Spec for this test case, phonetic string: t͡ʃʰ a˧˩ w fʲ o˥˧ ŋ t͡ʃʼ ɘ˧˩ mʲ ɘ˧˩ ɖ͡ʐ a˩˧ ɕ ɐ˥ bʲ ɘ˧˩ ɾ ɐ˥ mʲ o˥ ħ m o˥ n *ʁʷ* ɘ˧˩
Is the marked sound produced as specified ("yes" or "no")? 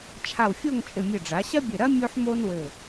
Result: no